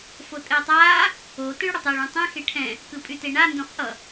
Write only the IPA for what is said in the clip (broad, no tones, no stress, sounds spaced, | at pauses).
f o tʼ ɘː tˤ aː | o t ɯ ɭ ɽ ʌ tˤ ɛ ɭ ũ tˤ ɛ̃ x e ʈʰ ɛ̃ | k ɯ pʼ y t e ɳ a n d õ χ ʔ ʌ